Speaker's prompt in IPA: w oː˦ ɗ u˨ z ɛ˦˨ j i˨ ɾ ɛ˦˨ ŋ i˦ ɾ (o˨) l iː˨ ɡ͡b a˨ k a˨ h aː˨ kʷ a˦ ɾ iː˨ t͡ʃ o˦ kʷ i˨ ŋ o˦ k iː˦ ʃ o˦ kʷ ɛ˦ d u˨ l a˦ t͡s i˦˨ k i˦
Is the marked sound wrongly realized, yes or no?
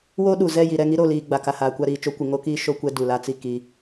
no